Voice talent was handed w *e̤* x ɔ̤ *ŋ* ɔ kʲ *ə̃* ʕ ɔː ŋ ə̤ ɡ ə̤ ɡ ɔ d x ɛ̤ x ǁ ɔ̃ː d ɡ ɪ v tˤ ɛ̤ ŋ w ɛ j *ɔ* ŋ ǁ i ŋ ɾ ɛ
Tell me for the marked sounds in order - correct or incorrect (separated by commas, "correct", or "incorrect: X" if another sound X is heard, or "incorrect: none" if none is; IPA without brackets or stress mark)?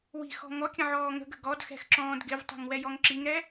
incorrect: i̤, correct, correct, correct